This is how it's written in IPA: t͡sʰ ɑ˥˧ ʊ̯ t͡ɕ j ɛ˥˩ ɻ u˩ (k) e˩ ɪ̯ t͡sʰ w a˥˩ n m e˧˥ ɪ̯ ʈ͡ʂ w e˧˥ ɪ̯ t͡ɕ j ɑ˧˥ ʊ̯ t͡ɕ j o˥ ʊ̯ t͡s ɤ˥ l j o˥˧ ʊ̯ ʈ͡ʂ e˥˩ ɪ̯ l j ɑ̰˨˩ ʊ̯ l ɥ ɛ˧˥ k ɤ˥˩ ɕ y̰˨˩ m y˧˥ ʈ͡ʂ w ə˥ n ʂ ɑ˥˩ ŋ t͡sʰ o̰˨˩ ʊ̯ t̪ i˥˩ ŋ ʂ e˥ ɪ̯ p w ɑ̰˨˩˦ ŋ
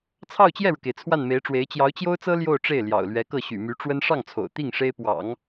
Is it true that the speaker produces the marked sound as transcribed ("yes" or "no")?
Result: yes